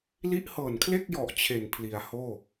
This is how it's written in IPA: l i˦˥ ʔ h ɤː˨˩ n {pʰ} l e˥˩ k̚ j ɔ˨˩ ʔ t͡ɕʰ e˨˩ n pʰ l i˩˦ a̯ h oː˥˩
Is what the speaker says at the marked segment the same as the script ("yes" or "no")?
no